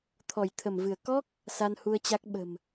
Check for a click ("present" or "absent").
absent